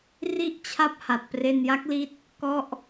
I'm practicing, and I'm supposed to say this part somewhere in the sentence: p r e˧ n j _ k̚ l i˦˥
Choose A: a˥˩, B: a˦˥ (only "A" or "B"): B